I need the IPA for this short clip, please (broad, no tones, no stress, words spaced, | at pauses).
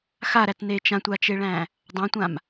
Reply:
xaɾætne t͡ʃãtʷat͡ʃeɭæ̃ | dˤãtʷãm